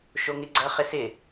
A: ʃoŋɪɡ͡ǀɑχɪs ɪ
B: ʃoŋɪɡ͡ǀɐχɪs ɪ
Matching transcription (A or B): B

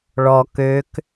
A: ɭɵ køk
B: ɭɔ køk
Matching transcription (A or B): B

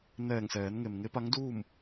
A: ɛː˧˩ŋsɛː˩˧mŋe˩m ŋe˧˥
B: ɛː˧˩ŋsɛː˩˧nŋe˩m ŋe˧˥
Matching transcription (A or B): B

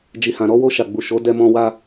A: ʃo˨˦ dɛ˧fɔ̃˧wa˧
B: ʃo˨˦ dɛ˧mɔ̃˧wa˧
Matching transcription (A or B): B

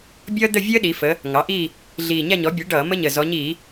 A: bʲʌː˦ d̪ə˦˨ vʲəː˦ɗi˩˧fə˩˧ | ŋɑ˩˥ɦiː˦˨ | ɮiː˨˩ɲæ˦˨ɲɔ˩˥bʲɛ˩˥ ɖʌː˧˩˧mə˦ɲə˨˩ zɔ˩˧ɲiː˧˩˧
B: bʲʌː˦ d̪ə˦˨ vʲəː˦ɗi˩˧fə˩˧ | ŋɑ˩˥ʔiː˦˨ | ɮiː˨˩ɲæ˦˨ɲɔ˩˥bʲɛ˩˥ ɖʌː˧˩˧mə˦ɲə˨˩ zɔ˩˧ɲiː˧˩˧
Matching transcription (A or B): B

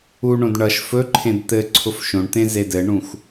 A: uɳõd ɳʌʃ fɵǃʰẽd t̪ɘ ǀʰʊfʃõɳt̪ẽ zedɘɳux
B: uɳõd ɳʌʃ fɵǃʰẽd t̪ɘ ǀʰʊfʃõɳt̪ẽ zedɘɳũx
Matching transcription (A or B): B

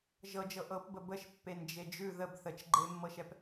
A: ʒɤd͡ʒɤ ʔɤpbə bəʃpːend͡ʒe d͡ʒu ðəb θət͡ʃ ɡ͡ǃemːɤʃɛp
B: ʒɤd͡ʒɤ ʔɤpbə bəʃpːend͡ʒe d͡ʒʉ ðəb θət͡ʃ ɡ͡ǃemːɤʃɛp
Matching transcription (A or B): B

